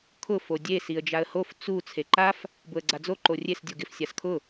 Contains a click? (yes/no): yes